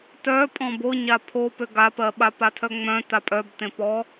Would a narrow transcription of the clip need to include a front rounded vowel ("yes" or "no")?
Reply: yes